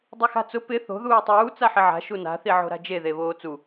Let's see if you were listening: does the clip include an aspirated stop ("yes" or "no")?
no